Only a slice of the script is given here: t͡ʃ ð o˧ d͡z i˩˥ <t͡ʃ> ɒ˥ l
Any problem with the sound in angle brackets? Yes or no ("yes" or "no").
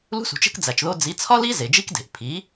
yes